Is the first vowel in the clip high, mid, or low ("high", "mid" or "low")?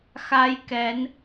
low